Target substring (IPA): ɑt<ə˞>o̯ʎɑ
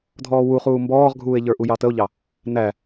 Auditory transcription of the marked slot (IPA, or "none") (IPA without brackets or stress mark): ə